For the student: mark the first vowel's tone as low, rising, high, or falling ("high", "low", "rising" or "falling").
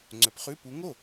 rising